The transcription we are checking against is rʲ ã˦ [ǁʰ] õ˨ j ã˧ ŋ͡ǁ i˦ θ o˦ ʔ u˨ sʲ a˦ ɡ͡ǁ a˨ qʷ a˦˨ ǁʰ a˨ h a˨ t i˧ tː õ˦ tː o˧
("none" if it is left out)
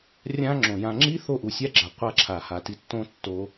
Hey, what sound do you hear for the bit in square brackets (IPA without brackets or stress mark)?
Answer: ŋ͡ǁ